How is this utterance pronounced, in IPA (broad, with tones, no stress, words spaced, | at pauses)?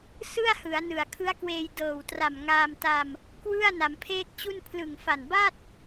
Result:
sɯ˥˩a̯hɯ˩˦a̯ nɯ˨˩a̯kʰɯ˦˥a̯kweː˧j dɤː˨˩wtra˨˩m ŋaː˧mta˧m | kwɯ˥˩a̯ na˩˦mpʰeː˥˩k̚t͡ɕu˥˩n pʰlɯ˨˩ŋfa˨˩nba˥˩t̚